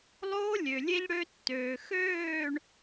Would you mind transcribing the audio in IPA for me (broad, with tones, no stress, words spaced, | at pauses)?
lˠoː˦lʲø˨lʲe˦ʎ ɽø˦tːøː˨ xøː˦˨ɳ